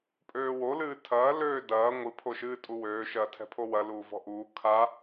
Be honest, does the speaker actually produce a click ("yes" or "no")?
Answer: no